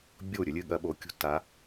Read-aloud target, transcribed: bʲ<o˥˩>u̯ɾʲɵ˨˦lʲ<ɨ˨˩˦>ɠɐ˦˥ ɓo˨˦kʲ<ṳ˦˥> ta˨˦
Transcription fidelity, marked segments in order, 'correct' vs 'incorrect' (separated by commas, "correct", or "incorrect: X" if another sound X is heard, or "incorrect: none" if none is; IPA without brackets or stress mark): correct, incorrect: ɨ˥˩, correct